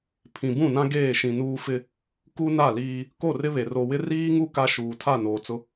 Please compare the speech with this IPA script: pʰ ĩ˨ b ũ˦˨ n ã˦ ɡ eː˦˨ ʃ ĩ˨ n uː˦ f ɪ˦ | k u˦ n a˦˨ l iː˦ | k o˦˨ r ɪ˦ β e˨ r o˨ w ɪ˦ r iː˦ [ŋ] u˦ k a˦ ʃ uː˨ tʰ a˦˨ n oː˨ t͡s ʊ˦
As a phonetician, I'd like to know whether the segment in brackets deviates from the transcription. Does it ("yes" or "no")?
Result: no